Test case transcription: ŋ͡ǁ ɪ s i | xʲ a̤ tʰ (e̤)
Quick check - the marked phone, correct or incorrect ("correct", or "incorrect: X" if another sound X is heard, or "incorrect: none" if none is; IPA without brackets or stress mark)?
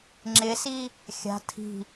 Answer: incorrect: i̤